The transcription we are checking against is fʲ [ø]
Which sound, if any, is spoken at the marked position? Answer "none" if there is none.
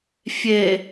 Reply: e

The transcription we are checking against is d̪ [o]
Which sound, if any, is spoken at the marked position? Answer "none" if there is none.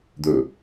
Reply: ɵ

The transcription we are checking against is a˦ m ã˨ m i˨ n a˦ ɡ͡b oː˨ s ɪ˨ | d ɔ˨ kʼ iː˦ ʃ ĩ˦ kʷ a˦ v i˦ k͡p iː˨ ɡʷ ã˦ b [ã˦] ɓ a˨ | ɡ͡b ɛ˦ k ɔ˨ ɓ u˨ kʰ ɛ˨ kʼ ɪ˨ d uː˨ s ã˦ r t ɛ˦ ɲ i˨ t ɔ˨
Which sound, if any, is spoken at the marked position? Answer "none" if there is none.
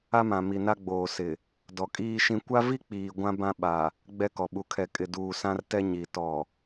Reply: ã˦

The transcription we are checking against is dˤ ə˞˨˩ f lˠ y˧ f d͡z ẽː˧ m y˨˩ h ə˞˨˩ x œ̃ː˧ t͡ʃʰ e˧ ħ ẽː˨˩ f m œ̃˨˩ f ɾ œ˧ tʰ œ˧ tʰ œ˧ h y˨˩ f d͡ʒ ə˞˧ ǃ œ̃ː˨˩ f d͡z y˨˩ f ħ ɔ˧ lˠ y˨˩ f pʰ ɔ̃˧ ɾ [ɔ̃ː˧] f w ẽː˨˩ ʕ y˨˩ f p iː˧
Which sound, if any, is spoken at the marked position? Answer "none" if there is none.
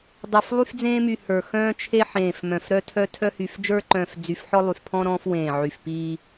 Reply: ɔ̃ː˧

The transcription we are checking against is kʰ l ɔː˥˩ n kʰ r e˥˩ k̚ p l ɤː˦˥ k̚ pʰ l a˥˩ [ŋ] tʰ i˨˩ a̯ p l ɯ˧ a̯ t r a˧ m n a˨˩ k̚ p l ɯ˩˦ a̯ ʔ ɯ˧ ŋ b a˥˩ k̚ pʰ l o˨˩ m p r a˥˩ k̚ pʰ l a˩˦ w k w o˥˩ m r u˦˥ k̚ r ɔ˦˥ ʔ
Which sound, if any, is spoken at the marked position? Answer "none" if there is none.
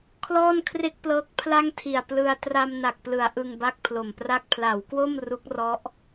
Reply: ŋ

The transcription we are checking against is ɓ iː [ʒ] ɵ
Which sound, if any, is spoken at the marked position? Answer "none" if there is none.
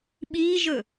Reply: ʒ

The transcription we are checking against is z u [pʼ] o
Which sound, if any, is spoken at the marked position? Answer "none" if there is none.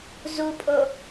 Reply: pʼ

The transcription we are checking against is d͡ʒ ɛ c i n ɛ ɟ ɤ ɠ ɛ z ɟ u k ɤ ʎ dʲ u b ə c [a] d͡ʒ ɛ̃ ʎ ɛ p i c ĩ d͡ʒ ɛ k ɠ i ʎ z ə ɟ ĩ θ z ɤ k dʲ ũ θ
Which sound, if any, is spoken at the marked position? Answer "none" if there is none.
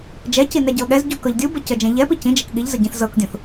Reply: ə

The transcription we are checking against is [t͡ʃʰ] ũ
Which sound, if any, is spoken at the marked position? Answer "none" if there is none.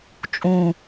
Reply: t͡ʃʼ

